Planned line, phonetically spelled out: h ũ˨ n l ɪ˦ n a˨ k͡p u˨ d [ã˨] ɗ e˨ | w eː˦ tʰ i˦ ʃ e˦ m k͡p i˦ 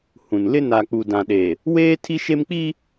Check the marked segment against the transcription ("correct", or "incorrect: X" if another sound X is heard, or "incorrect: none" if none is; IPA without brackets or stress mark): correct